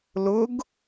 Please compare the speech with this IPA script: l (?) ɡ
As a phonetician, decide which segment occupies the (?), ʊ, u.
ʊ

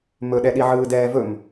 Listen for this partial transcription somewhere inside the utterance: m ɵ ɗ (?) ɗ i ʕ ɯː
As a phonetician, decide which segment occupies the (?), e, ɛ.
ɛ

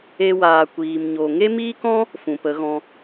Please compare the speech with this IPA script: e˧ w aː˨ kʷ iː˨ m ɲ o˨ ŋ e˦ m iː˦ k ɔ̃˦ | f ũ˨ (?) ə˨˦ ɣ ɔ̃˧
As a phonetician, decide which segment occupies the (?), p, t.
p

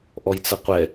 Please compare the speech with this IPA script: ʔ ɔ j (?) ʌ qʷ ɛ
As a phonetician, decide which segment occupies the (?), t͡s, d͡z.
t͡s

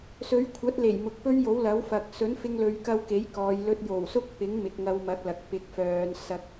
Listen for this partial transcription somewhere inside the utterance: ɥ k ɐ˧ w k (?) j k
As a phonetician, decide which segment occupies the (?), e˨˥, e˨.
e˨˥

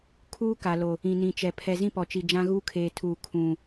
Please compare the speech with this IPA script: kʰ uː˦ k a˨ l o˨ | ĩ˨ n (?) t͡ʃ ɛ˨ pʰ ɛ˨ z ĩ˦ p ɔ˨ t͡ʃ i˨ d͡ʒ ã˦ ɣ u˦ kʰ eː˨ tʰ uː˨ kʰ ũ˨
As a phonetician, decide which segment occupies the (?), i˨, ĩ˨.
ĩ˨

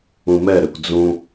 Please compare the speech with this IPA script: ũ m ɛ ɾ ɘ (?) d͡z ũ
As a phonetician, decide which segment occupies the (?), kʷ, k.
kʷ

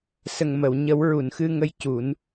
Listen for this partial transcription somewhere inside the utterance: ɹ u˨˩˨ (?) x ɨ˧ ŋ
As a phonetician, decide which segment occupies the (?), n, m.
n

